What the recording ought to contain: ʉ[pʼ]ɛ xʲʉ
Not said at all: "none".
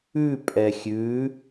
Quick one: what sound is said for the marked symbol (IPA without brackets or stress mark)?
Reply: pʼ